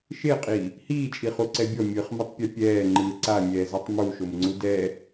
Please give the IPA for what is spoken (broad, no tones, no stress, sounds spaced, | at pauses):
ʃ e qʼ i | h iː t͡ʃʼ i χ u ǀ ɛ bʲ ɔ mʲ ɯ χ m ɛ tˤ pʲ o pʲ ɛː ŋ͡ǃ ɯ ǀ a mʲ ɛː z ɤ tˤ m u ʃ o m ŋ͡ǀ u d ɛ